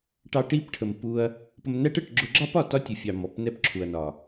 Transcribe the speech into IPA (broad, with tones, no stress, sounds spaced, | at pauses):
ʈ ɑ˧ ʈ i˦˨ p ʈʰ ə˨ m p u˧ ɐ̯ | p ə˧ m n æ˦ ʈ ə˦˨ ʈ ɡ͡ǁ ʊ˧ ɡ͡ǁ ɑ˦ p ɒ˨ t ɒ˦ tʲ ʊ˨ fʲ ɑ˨ m ɔ˨ p n ɛ˦ p ǁʰ u˨ ɐ̯ n ɒ˨